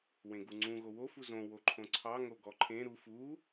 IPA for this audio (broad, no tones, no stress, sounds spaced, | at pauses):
w ẽ ɡ u ŋ͡ǀ ũ ɣ o w o f u z õ w o ǃʰ õ ǀʰ ɑ ŋ o ɡ ɔ ǃʰ ẽ ɾ u f u